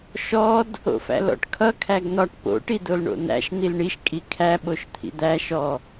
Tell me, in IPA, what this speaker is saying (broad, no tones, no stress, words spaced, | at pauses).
ʃɔd | o̰fæ̰lɔ̰ʈkʰʌ kʰæɡn̪ɒʈ po̰ ʈidolɳo̰n̪æ̰ʃ n̪ilɳiʃ kʼikʰæ ɓoʃt̪ʰḭd̪æ ʃɔ